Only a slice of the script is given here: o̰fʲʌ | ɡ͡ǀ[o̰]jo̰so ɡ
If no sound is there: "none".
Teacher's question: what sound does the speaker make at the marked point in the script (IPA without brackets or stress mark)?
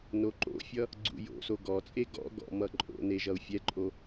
ṵ